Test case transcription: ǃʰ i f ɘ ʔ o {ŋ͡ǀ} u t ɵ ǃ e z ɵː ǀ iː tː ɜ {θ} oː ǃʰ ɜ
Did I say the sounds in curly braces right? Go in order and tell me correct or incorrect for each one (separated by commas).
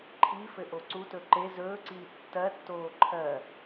incorrect, incorrect